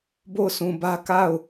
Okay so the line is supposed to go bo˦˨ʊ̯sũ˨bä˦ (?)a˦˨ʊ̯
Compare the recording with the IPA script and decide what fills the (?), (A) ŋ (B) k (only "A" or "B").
B